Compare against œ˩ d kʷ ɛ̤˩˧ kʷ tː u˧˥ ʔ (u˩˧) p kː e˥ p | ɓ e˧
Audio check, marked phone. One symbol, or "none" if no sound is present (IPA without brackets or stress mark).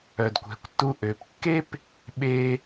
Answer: ø˩˧